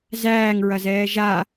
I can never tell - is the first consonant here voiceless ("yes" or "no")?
no